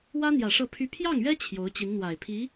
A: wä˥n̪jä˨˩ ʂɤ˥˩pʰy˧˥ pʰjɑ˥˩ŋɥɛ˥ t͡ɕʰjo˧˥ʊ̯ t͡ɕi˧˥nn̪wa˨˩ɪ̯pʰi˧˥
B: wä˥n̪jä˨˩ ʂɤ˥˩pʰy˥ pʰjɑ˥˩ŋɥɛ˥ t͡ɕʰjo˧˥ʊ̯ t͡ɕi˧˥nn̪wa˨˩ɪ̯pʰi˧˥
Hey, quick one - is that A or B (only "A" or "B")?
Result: B